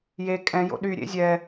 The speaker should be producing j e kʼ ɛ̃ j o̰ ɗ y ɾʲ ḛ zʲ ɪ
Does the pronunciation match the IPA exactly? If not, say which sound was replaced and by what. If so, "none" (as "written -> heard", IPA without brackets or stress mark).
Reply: ɪ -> ɛ